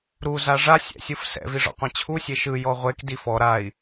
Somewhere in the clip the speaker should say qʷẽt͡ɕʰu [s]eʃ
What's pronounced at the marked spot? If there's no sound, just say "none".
sʲ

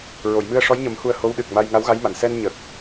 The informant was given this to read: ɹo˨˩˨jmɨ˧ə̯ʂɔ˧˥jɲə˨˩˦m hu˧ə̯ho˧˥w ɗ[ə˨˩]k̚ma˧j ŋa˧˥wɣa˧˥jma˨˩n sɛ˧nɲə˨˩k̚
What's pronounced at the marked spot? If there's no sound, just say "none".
ɨ˨˩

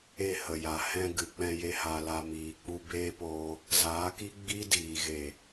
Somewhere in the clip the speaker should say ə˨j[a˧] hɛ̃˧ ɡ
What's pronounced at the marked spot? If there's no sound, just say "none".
a˨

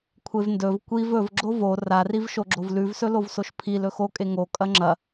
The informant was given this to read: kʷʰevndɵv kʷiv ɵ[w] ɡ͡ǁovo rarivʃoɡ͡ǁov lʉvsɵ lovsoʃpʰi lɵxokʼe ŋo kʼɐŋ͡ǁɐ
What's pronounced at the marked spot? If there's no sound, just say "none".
v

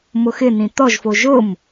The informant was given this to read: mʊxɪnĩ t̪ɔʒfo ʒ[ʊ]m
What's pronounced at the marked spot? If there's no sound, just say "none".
ʊ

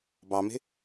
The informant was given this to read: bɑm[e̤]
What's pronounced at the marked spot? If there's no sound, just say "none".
e̤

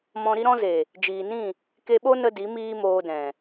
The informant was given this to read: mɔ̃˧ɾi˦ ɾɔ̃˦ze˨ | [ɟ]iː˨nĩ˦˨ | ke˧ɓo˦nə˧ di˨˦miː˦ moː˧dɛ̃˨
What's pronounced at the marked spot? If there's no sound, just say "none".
d͡ʒ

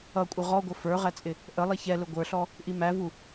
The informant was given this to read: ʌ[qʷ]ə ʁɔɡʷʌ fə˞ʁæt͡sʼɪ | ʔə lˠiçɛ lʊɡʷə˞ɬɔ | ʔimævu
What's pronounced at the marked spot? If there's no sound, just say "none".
kʷʼ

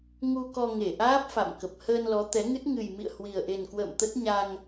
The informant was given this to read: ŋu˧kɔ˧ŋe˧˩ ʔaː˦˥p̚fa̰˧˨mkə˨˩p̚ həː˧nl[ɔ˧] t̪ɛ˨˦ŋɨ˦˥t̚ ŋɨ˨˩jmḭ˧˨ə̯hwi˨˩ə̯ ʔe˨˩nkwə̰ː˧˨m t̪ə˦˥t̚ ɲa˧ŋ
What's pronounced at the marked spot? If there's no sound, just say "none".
ɔ˨˦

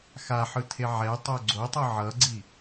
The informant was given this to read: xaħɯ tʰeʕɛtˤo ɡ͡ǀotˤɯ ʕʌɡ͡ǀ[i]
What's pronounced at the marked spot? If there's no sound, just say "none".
i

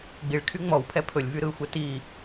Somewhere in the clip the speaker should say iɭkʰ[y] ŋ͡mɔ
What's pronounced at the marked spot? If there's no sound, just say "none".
y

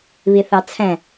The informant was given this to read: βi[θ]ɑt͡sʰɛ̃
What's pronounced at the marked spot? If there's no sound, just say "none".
θ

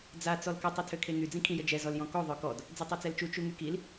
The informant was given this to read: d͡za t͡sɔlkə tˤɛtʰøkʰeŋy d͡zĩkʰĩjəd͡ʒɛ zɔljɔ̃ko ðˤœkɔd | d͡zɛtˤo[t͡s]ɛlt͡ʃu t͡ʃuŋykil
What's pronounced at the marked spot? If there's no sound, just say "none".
t͡s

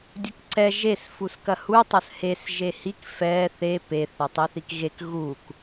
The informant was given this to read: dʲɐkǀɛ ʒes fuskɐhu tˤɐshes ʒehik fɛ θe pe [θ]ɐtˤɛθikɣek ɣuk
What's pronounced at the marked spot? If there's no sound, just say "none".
θ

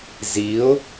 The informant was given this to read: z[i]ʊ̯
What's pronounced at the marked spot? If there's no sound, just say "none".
i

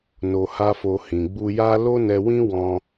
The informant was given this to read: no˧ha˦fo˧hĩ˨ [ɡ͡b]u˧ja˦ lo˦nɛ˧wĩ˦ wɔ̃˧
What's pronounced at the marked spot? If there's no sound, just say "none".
ɡ͡b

